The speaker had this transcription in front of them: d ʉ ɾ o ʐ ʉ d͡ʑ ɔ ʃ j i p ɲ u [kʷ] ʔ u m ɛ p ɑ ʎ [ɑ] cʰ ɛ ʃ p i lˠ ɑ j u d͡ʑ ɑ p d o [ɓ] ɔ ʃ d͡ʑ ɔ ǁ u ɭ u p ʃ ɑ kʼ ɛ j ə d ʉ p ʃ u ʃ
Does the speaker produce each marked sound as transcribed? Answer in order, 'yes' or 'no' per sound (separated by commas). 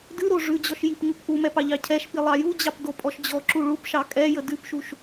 no, yes, no